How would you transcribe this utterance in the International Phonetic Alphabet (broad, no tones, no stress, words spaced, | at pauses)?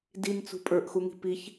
dint͡sṳ pʼə˞ʔxuŋi̤ piç